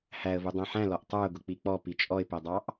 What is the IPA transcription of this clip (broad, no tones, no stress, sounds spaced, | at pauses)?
h æ ə̯ v u dˤ æ̃ ħ æ̃ l ɔ ʔ tˤ ə˞ ʊ̯ ɡ ʊ k͡p i k͡p ɔ p i t͡ʃʼ ɔ ɪ̯ p ɛ dˤ ɑ ʔ